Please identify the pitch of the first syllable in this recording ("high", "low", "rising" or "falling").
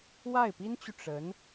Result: falling